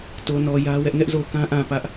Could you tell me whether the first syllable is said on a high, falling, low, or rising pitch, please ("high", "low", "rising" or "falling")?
low